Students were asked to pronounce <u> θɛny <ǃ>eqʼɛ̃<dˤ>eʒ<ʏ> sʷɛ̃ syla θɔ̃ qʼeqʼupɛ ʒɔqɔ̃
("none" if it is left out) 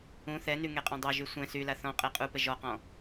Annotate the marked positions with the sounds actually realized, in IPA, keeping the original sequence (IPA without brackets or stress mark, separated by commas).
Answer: ũ, ŋ, dˤ, y